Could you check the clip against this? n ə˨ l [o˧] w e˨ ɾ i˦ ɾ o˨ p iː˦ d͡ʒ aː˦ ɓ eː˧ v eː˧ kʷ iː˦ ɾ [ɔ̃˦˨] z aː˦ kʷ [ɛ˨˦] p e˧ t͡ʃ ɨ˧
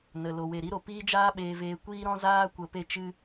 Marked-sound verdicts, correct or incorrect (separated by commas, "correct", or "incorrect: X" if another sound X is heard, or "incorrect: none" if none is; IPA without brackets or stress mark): incorrect: o˨, incorrect: ɔ̃˦, incorrect: ə˨˦